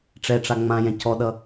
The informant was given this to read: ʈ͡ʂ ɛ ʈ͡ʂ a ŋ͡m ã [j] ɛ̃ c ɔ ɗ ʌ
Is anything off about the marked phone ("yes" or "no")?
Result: no